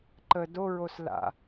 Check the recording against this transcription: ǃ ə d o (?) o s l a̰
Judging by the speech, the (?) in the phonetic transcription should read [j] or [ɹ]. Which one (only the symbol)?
ɹ